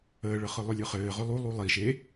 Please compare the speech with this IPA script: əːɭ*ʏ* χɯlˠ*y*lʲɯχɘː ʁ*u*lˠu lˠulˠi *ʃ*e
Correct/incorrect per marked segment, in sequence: incorrect, incorrect, incorrect, correct

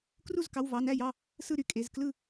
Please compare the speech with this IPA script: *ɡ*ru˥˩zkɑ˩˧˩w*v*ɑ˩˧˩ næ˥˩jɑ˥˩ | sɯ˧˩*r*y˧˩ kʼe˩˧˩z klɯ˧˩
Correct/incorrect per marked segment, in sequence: incorrect, correct, incorrect

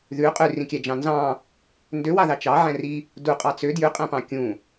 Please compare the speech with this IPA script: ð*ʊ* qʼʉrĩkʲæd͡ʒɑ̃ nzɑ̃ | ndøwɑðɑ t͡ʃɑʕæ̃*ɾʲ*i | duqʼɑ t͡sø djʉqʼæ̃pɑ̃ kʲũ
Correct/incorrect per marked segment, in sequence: incorrect, incorrect

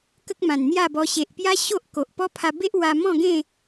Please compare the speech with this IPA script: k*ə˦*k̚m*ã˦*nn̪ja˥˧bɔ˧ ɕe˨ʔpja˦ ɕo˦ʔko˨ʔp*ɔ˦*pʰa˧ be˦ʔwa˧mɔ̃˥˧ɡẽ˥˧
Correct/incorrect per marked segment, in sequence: correct, incorrect, correct

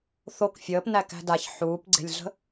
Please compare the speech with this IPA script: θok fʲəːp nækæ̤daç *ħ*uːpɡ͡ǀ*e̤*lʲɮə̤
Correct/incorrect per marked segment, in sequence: correct, correct

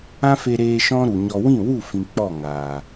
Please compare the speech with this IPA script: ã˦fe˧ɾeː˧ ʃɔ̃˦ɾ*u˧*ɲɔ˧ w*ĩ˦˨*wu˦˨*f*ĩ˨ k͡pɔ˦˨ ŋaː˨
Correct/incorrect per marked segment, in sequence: incorrect, correct, correct

